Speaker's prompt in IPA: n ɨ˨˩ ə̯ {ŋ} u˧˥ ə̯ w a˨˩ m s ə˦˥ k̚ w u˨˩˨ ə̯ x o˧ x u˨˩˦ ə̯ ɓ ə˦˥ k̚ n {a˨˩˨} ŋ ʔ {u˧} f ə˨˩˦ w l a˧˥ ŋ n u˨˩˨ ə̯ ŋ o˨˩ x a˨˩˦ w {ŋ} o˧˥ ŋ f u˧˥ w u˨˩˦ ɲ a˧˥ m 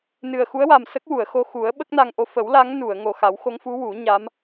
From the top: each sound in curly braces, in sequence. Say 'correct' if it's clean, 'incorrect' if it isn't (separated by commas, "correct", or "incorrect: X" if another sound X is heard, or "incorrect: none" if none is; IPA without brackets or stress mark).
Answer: incorrect: x, incorrect: a˧, incorrect: o˧, incorrect: x